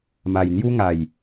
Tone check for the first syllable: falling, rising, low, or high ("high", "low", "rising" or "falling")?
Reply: low